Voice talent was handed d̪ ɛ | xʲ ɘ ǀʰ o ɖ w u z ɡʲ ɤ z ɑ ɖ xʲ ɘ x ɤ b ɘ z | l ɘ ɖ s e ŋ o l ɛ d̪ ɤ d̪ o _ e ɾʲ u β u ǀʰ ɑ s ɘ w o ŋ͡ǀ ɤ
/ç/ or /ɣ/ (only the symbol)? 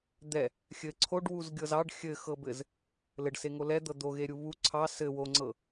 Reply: ɣ